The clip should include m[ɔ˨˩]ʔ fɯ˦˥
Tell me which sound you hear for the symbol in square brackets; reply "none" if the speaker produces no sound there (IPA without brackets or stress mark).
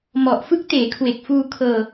ɔ˨˩